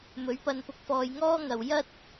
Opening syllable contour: rising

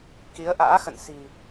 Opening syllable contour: rising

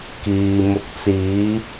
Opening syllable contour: low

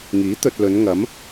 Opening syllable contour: rising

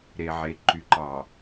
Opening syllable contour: low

